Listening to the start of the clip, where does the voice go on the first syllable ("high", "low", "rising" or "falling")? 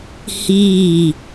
falling